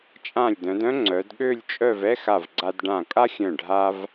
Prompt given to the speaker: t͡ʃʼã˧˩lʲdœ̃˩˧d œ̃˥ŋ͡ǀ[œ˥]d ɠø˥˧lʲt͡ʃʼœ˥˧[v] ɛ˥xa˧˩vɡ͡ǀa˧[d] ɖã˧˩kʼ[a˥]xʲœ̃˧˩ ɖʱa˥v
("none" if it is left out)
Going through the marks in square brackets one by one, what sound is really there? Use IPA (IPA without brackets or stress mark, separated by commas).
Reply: œ˩˧, v, d, a˥